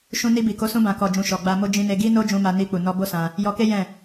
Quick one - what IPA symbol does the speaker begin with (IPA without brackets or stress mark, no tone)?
ʃ